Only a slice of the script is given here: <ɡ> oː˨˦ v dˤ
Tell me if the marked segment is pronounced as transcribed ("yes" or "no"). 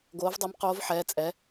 yes